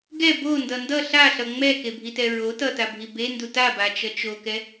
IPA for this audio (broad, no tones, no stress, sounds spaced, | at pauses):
ɡ ɛ b o n d ʌ n d ʌ ɬ a ɬ ʌ ŋ͡m ɛ k e bʱ i t ɛ ɹ o t ʌ t a bʱ i b e n d u t a b a t͡ʃ ʌ t͡ʃ o k ɛ